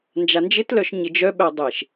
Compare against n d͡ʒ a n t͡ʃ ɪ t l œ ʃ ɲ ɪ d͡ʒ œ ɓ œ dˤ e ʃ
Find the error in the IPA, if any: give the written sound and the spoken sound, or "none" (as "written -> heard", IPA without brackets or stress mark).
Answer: t͡ʃ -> d͡ʒ